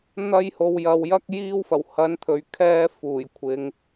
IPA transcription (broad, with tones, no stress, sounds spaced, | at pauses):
n̪ ɐ˧ j h o˨ w j ɐ˨ w j ɐ˥ k̚ j iː˥ w f ɐ˨˩ w h ɐ˨˧ n t̪ʰ ɵ˨ ɥ kʰ ɛː˧ f uː˨˩ j kʷʰ ɪ˨˧ ŋ